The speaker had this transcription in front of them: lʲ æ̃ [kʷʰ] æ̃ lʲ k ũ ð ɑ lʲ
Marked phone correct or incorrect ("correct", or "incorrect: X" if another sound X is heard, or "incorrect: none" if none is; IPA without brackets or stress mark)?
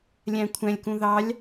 correct